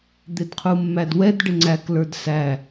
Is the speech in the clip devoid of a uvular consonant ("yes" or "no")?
no